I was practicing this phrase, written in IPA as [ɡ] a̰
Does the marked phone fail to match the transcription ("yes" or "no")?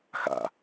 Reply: yes